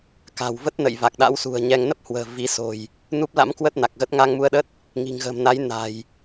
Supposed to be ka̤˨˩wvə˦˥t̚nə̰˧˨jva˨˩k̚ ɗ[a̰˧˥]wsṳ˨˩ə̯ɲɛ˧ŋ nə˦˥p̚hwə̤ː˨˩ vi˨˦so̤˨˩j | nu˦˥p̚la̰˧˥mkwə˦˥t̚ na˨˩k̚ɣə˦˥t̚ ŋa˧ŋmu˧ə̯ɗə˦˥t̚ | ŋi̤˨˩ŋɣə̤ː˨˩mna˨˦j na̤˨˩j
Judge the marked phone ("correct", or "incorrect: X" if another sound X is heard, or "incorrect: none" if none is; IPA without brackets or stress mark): correct